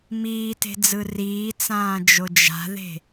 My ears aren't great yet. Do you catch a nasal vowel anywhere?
yes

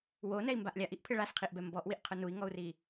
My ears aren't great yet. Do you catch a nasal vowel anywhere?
no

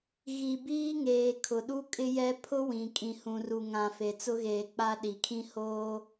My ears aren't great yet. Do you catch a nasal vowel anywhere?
yes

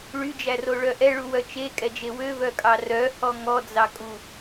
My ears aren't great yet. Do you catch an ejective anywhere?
yes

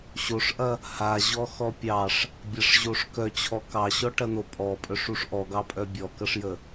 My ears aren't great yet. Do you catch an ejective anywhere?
yes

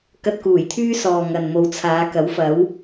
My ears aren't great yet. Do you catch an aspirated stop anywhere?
yes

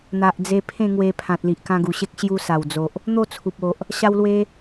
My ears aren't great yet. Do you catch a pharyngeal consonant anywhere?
no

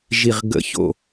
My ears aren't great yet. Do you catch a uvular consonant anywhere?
yes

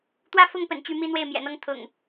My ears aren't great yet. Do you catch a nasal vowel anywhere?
no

